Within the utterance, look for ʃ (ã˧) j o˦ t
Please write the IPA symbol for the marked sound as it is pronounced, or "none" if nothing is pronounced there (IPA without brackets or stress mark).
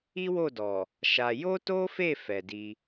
a˧